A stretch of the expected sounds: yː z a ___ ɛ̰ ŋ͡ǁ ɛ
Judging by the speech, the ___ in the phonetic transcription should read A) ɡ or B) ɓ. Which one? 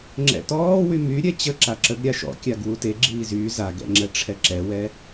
A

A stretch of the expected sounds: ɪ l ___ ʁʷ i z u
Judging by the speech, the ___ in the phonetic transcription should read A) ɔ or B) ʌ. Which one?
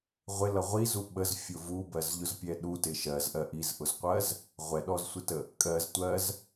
B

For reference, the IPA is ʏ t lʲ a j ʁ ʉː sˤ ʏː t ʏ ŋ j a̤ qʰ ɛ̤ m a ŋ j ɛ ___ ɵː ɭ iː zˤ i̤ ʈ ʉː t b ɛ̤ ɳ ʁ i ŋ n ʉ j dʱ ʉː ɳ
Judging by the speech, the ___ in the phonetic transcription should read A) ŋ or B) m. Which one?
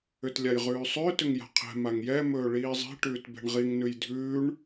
B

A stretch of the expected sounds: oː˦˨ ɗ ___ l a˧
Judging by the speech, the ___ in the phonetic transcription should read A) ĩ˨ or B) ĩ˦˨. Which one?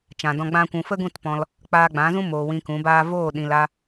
A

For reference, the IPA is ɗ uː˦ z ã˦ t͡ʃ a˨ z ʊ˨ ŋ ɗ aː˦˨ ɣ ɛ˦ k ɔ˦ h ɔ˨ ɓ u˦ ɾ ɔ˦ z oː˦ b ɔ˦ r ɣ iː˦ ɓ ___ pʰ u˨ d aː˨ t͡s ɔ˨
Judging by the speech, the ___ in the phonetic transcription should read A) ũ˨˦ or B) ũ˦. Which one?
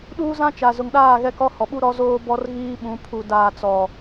A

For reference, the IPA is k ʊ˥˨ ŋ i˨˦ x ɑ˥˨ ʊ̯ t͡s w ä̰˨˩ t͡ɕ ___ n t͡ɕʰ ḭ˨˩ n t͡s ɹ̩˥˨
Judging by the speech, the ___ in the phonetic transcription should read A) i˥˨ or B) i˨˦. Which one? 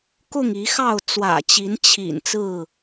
B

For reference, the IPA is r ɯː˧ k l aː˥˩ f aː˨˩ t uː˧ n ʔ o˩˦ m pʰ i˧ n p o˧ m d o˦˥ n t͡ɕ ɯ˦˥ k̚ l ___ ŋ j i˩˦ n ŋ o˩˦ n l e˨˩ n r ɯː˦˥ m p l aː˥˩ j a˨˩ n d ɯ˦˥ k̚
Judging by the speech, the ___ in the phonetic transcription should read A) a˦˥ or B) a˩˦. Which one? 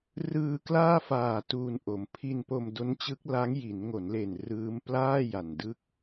A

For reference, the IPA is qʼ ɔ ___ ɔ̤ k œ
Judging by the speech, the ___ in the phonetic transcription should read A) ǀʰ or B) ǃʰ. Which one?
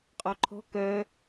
B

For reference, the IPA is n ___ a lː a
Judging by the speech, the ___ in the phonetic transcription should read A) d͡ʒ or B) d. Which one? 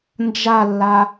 A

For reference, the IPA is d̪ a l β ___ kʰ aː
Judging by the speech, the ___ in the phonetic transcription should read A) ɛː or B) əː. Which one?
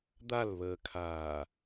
B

